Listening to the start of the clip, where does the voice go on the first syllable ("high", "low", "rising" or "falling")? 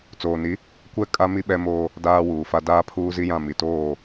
low